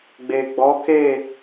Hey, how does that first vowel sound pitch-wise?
low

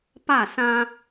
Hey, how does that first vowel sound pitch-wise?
falling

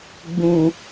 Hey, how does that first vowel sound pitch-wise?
low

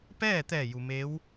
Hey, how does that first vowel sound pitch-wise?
falling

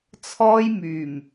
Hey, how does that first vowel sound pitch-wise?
high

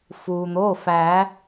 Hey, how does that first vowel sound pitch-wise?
low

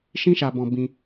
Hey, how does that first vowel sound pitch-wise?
high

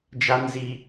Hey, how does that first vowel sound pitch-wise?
high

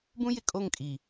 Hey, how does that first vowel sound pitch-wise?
high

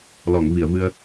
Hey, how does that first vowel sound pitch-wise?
low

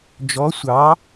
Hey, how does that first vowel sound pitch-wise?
rising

